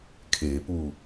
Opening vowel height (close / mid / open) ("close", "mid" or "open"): mid